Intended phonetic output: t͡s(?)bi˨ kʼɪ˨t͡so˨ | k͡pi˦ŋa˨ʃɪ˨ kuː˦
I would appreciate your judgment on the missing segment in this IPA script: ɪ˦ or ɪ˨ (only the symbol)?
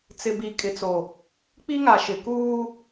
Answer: ɪ˨